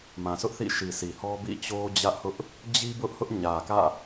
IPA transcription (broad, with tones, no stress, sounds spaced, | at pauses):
m ã˨ sʰ ʊ˦ ʔ θ ḭ˦˨ ʃ i˨ s i˨ h ɔ˦ b ḭ˦˨ t͡ɕ o˦ d͡ʑ ä˦ ʔ h ʊ˦ ʔ | d͡ʑ i˦ b ʊ˦ ʔ h ʊ˦ ʔ ɲ ä˨ k ä̰˦˨